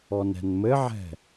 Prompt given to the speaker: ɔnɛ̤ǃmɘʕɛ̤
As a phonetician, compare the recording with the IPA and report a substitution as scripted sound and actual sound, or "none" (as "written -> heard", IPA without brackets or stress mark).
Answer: ǃ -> n